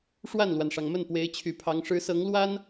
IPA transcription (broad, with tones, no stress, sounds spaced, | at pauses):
ʂ w a˥˩ n l w a˩ n ʂ ɑ˩ ŋ m ə˥˩ n p w e˧˥ ɪ̯ t͡ɕʰ y˨˩ pʰ ɑ˧˥ ŋ ʂ ɻ̩˧˥ s ɤ˧˥ ŋ l w a˥ n